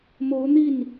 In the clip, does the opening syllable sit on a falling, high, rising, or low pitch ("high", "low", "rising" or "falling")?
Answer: rising